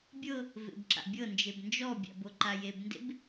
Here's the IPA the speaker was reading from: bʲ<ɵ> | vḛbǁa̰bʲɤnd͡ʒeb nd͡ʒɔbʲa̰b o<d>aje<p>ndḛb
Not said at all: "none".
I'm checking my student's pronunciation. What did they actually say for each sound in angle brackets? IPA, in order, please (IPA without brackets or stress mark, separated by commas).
ɤ, ǃ, b